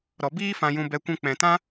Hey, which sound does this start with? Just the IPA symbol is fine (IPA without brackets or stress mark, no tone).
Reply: ɾ